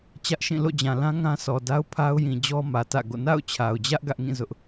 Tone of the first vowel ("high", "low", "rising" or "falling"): high